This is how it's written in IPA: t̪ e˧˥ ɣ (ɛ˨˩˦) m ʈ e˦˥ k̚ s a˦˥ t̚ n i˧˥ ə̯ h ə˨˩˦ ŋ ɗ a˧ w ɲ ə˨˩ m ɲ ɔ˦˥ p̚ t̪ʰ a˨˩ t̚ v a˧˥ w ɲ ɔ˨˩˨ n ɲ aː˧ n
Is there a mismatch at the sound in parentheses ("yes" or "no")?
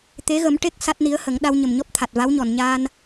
yes